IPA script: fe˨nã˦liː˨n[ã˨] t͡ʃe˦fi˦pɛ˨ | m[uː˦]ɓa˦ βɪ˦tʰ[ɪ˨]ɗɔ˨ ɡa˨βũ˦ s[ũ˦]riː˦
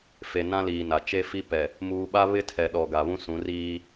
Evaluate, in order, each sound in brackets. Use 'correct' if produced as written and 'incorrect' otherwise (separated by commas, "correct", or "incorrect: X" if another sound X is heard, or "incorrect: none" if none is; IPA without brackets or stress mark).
incorrect: a˨, incorrect: uː˨, incorrect: ɛ˨, incorrect: ũ˨˦